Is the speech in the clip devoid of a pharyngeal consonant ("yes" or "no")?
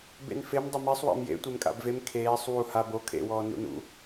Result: yes